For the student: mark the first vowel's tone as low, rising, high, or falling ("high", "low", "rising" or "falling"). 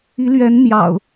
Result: rising